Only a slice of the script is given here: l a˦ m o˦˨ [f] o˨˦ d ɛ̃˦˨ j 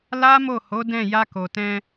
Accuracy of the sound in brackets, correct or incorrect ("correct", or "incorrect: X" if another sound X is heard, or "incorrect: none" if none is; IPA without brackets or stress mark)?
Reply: incorrect: h